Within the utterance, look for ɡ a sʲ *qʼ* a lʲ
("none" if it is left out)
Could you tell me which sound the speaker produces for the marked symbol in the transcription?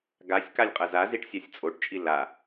k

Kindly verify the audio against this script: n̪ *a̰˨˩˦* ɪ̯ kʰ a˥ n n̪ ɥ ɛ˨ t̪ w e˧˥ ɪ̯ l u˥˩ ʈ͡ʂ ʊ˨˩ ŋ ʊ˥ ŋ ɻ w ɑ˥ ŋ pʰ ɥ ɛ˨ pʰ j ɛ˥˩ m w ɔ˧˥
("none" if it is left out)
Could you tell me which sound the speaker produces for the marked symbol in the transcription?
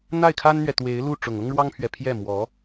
a˥˩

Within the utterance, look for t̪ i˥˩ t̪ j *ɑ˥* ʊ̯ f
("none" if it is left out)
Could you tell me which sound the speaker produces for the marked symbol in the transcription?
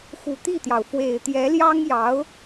ɑ˩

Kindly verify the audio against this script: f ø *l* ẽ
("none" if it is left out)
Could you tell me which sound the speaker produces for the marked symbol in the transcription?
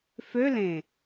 l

